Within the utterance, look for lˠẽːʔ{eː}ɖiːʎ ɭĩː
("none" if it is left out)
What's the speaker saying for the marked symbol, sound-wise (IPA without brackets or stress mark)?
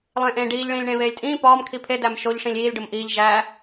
ẽː